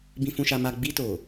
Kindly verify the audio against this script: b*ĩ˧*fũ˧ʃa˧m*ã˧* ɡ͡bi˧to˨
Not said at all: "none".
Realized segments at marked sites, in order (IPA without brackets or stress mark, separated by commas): ĩ˧, a˧